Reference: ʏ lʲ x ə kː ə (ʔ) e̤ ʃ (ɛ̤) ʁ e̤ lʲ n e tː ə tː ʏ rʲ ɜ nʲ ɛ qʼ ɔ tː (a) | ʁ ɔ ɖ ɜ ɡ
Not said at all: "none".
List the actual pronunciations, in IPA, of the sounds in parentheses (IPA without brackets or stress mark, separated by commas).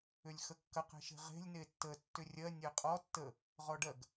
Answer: q, e̤, ə